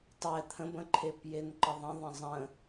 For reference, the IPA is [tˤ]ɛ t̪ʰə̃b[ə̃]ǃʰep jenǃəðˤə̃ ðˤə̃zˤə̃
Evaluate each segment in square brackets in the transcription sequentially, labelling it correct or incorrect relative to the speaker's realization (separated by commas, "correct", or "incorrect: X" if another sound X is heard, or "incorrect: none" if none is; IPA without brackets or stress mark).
correct, correct